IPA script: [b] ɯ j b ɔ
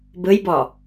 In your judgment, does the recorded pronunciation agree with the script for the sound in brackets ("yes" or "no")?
yes